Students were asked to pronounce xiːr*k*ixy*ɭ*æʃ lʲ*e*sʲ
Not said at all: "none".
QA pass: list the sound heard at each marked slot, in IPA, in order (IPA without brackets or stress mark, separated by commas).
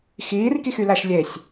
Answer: k, l, e